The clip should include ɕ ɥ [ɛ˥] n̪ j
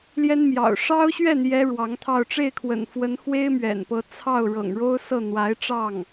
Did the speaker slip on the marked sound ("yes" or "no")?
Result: yes